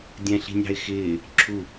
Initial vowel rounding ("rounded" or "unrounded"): unrounded